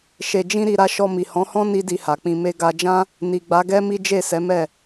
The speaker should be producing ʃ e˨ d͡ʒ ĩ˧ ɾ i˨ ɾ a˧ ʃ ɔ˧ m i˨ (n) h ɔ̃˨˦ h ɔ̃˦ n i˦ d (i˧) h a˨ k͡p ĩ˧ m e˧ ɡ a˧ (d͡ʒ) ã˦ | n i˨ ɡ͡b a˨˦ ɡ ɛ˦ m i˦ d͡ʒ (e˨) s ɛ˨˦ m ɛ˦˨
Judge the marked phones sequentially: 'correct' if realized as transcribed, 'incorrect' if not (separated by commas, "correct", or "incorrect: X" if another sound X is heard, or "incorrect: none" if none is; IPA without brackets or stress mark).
incorrect: none, correct, correct, incorrect: e˦˨